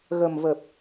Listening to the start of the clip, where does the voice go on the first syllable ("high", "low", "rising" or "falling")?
low